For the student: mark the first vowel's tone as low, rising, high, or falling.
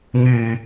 low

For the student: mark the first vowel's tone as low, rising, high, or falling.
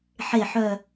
low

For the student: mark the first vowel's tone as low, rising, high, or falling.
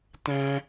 high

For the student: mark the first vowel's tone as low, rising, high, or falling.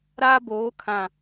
high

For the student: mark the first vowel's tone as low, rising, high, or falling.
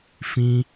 high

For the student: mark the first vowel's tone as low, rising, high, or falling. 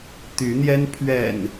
rising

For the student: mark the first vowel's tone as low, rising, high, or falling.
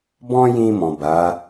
high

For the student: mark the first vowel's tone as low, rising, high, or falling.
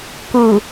low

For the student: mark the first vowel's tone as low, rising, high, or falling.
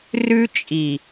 high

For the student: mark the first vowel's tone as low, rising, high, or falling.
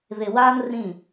low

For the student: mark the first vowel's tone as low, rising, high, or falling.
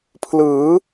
rising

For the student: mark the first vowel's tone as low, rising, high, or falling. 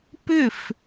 falling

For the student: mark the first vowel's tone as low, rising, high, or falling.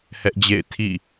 high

